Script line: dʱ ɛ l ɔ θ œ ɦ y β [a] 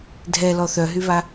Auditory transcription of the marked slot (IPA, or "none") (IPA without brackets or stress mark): a